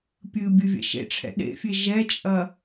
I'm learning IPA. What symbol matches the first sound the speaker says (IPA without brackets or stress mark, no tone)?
pʲ